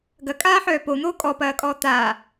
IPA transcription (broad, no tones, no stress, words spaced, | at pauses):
ɡɐkʼaːħœː pon̪oː kʼɔpɐːkʼɔː t̪aː